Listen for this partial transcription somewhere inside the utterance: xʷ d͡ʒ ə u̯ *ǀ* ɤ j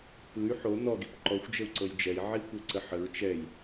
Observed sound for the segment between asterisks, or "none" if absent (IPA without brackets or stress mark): ǀ